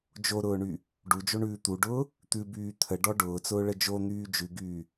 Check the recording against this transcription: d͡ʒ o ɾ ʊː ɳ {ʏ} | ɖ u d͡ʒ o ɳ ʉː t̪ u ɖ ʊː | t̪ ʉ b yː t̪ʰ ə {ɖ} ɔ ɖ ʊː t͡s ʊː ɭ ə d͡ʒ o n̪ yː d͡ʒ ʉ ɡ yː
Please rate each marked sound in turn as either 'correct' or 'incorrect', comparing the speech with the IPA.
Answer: incorrect: y, correct

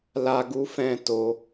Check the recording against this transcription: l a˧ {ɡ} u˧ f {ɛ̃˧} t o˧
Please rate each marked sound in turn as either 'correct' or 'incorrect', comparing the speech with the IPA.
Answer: correct, correct

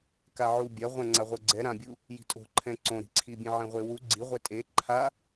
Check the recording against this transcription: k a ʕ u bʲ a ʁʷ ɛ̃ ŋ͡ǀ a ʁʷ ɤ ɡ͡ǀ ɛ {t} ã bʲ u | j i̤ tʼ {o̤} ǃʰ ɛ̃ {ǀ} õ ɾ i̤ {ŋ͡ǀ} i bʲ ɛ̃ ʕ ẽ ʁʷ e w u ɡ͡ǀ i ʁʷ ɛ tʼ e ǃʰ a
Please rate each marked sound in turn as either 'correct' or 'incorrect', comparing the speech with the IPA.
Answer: incorrect: ɾ, correct, correct, incorrect: ǀʰ

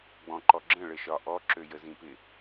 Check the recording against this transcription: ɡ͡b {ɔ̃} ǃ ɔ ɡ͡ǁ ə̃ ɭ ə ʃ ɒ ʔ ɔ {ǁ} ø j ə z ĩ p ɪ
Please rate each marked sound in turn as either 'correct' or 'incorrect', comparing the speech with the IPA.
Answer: correct, correct

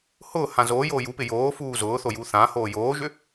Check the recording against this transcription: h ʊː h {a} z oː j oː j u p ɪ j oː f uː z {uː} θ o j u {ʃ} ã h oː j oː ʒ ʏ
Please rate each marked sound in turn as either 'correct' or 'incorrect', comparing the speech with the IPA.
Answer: incorrect: ã, incorrect: ʊː, incorrect: θ

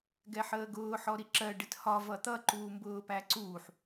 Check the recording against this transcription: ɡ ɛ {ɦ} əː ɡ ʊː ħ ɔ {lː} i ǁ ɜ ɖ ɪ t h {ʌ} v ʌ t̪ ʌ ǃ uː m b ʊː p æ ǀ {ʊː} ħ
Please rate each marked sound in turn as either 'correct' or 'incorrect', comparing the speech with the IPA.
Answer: incorrect: ħ, incorrect: ɾ, incorrect: ɒ, incorrect: uː

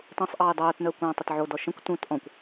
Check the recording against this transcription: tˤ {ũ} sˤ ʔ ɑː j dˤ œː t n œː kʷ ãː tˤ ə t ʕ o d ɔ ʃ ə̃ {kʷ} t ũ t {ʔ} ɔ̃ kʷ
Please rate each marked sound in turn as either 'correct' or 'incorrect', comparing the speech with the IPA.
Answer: correct, correct, correct

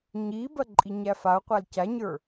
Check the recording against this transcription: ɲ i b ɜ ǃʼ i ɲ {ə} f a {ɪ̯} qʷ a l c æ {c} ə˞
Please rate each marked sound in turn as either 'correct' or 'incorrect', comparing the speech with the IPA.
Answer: incorrect: æ, incorrect: ʊ̯, incorrect: ɲ

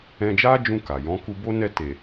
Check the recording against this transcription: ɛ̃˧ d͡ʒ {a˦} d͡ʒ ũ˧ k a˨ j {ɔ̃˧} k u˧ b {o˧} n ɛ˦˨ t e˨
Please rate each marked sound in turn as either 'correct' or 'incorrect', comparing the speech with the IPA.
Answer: correct, incorrect: ɔ̃˨˦, incorrect: o˦

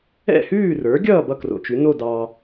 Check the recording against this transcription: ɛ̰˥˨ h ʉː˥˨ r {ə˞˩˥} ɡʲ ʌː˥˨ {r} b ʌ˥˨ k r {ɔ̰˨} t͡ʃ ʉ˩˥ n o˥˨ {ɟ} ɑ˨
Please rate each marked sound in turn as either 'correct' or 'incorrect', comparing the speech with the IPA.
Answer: correct, incorrect: none, incorrect: o̰˨, incorrect: d

